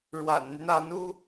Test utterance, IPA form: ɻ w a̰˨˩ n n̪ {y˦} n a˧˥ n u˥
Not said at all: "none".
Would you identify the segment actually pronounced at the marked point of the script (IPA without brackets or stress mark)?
y˦